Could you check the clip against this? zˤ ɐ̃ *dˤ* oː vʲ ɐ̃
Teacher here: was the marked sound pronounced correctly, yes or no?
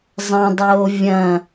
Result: yes